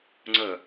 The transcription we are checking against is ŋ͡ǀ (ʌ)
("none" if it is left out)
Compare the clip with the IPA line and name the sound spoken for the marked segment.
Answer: ə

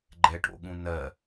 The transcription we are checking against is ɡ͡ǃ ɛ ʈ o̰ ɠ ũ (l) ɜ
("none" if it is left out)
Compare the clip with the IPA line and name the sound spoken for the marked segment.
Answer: n̪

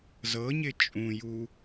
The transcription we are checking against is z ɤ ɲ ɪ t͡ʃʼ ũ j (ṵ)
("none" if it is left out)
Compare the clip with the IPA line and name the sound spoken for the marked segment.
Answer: u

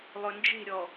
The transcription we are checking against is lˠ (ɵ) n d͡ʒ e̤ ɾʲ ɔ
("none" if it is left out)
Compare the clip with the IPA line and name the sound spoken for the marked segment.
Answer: ɵ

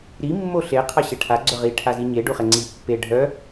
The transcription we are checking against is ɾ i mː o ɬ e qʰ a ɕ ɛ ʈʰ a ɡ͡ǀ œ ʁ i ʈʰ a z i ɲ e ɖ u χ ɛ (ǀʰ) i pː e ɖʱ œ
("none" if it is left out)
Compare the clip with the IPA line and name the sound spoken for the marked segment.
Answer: ŋ͡ǀ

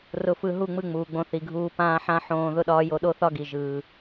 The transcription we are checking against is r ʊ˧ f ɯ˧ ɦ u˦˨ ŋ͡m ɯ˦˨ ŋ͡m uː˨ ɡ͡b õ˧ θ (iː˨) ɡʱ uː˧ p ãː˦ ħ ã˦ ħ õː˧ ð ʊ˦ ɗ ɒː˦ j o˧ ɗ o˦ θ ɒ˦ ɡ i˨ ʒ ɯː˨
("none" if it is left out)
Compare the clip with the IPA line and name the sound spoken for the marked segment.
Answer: i˨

